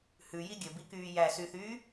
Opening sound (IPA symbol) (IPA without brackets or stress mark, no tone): h